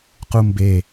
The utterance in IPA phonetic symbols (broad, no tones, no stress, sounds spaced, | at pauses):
q u m b e